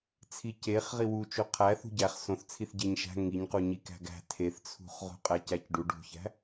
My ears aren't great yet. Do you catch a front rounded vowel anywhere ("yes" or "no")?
no